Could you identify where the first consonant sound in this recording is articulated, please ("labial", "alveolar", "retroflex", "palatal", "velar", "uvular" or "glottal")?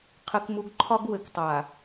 uvular